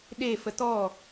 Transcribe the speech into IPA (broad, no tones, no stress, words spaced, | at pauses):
ɗe fət̪ɔ